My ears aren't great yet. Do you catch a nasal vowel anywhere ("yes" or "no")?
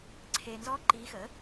no